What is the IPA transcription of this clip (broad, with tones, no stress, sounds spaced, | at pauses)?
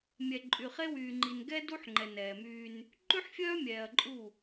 mʲ ɛ˨ ǃʼ y˨ χ e˦ w yː˨ ŋ͡ǃ i˨ n ɡ ɛ˦ d u˦ ħ ŋ͡ǃ ɛ˨ n ɛː˨ m yː˦ n | ǃ ʉ˦ ħ fʲ œː˦ mʲ ɛː˨ ɐ̯ ǃʼ u˦˨